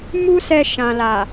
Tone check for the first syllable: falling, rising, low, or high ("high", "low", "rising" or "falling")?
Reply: high